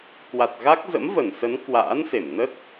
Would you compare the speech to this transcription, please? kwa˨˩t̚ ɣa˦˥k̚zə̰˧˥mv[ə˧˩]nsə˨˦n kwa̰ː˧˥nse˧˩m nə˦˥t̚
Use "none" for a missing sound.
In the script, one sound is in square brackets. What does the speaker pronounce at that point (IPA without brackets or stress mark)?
ə˧˩